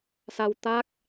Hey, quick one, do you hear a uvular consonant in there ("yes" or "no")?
no